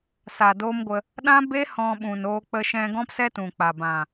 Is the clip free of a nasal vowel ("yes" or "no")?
no